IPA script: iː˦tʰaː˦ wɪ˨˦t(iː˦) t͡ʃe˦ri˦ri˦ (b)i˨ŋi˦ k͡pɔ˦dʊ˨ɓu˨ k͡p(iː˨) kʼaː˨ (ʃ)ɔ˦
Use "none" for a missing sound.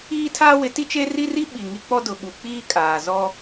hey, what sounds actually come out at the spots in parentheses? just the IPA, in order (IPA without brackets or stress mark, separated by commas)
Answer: i˦, ɓ, iː˦, z